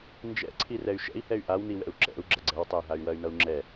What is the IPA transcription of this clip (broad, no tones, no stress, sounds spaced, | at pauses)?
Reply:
n d͡ʒ ɛ̰ ǀʰ i r ɛ y̯ ʃ ɛ̰ i̯ h ɛ y̯ ʔ a w n i w ɛ̰ u̯ ǁ ɛ̰ u̯ ɡ͡ǁ ɐ ɡ͡ǀ ɛ w tˤ ɛ y̯ ɦ a y̯ w ɐ y̯ n ʌ u̯ ŋ͡ǁ ɛ